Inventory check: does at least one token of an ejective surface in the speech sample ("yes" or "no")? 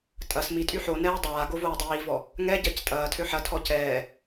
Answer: yes